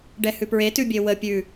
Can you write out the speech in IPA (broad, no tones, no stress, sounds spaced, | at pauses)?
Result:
ɖ ɛ h ʉ p ɹ e t ʉ bʲ e w ə pʲ ʉ